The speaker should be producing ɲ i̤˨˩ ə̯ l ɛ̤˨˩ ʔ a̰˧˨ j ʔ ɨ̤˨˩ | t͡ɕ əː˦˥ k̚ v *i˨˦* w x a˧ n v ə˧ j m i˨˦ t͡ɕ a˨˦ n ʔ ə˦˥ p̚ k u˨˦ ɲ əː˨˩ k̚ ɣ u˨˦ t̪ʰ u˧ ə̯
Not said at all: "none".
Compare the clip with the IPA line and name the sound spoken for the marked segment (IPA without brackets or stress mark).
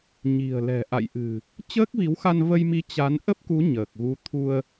i˨˦